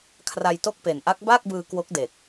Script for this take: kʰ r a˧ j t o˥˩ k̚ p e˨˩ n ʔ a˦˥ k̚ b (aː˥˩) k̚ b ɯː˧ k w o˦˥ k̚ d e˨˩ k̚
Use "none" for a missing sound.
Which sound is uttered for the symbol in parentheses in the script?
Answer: aː˥˩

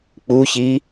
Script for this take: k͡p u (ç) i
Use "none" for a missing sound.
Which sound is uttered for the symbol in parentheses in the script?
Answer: ç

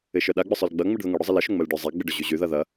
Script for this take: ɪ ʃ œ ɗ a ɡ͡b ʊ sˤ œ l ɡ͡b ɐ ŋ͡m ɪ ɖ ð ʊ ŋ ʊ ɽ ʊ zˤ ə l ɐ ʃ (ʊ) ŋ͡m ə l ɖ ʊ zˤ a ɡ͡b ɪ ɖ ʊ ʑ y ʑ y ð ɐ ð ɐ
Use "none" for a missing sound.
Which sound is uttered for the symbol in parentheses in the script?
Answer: ʊ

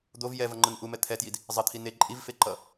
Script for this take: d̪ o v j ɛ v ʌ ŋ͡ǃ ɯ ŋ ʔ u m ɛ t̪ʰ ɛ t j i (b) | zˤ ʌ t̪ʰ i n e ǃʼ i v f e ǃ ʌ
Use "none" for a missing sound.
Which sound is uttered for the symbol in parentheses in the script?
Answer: d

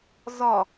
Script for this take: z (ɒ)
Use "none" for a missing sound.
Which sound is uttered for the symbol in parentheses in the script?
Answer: ɒ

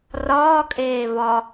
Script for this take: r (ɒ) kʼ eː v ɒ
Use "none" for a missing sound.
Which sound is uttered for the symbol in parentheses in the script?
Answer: ɒː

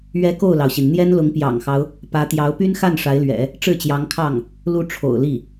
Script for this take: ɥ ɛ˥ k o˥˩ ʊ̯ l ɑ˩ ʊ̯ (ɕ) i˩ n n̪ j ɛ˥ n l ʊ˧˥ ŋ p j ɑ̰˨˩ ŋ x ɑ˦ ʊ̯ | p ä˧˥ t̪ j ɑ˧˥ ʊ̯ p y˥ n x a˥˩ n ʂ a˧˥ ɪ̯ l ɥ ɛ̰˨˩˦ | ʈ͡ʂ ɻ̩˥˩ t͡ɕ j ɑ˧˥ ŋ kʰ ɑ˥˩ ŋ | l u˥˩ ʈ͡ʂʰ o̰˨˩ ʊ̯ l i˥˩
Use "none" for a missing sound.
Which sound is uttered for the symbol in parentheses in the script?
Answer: ɕ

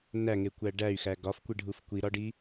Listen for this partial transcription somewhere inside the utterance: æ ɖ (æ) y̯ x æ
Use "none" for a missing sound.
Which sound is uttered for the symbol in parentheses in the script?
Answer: æ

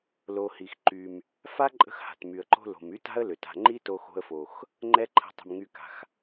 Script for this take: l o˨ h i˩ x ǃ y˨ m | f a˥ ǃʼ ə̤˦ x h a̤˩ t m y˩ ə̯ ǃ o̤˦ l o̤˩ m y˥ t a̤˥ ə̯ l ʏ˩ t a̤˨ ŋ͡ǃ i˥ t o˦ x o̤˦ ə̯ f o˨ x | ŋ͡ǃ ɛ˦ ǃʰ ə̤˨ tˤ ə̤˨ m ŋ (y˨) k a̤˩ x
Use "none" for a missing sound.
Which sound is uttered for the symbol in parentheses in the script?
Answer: y˨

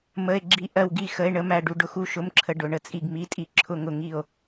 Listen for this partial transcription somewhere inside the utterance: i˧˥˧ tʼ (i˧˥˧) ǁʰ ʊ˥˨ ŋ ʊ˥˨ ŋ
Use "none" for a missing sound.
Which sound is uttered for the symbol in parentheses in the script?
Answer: i˧˥˧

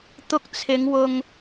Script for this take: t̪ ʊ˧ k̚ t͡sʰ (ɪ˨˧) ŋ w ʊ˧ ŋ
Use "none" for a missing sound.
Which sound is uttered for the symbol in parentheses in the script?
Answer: ɪ˨˧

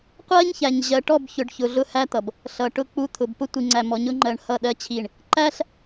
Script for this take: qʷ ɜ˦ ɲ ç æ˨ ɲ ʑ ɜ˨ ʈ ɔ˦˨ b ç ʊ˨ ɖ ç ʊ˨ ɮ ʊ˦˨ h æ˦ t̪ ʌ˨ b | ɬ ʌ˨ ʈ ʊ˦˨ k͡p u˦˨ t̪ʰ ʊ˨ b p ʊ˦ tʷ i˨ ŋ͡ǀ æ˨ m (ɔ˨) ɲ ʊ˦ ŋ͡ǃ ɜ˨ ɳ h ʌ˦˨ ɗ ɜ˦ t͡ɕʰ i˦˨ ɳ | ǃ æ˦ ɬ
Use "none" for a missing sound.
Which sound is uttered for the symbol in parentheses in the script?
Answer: ɔ˨˦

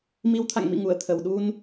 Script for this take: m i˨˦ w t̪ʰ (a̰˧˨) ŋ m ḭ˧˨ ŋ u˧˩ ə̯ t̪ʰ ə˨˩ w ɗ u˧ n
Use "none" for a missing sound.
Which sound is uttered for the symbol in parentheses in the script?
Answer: a̰˧˨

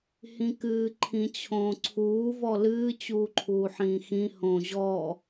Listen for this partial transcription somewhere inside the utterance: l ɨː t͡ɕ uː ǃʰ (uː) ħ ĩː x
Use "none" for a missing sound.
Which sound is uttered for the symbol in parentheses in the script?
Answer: uː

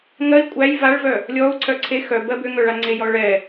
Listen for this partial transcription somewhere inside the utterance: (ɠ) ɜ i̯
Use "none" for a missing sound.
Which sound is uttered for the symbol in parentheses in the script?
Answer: ŋ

